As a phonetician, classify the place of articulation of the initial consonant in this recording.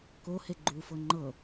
velar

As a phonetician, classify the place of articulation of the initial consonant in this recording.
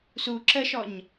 alveolar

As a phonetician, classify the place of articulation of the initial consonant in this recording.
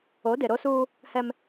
alveolar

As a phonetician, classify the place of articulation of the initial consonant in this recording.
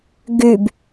velar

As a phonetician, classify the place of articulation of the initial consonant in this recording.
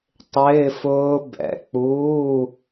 alveolar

